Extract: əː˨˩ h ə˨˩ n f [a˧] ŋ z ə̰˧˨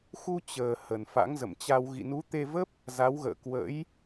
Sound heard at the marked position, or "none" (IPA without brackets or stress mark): a̰˧˥